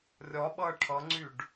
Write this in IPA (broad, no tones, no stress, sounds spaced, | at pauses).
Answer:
rʲ ɒ ɓ ʌ ʈʰ ʌ ŋ͡ǀ y ɖ